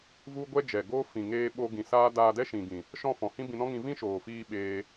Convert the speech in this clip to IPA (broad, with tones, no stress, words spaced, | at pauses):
vu˦ɡʷɛ˦d͡ʒɛ˨ɡoː˦ fĩ˨ŋeː˧ ɓo˧ ɡĩ˨saː˦ daː˧dɛ˦ʃĩ˨ɡĩ˨ | ʃɔ̃˦˨fɔ̃˨ hĩ˦bĩ˧nɔ̃˦ŋĩ˧ vĩ˦ ʃoː˨fiː˧ ɓeː˧